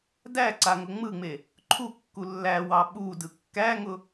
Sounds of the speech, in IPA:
dæǀa ŋʊŋ͡mɯŋ͡me | ǃʰukːu lːæwɑ ɓudɯ kːæŋʊ

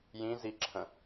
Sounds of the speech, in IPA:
jĩziǁʰə̃

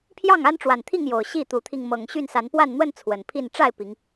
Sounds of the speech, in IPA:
pʰjɑ˥˨ŋa˦nʈ͡ʂwa˨˩nt̪ʰi˥˨ŋ jo˨˩ʊ̯ ɕi˥˨t̪u˨˦t̪ʰi˧ŋ mɤ˨˩ŋɕy˥˨nsa˨˦npwa˥˨n n̪wə˥˨n t͡sʰwə˨˩npʰi˥˨n ʈ͡ʂa˥˨ɪ̯ pi˨˦ŋ

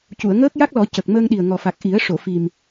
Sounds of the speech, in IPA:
cu˨˩˨ə̯ŋəː˦˥k̚ja˦˥k̚lɔ˨˩˦ cə˨˩k̚ məː˧ŋɗi˨˩ə̯ ŋɔ˨˩fa˨˩k̚ ʔi˨˩˦ə̯ ʂo˨˩˨fi˨˩m

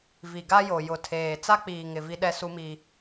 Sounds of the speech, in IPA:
vi˨ɡa˦jo˨ jʊ˨tʰeː˨ t͡sa˦k͡piː˨ ŋɪ˨ vi˦ɗɛ˦ su˦mi˦

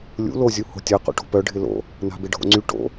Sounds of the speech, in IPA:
lʲṵ lozʲu ho̤tʲɐqṵʈo̤ pœ ɖʱɪlo̰ | na̤bɪɖʱo̰ŋ͡ǀy ʈo̰

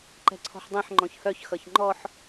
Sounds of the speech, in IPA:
ǃɛ̤ǀʰɔ̤ħdˤẽħ ŋ͡ǃɔ̃çhœç xʌçŋ͡ǃɔħ

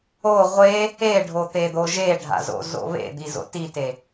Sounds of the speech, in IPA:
o ʁʷe | eɖʱo t̪ed̪oʒeɖʱa̰ zo̰zo̰βḛd̪i zo̰tite

